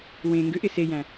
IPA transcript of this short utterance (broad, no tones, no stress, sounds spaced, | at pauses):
w ẽ ŋ ɡ ʏ ʔ ɪ s e j æ̃